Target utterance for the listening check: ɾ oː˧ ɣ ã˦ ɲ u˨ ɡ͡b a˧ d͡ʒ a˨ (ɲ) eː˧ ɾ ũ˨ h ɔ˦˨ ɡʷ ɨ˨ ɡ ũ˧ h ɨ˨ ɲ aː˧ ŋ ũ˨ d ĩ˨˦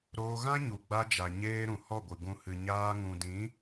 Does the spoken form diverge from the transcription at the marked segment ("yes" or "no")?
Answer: no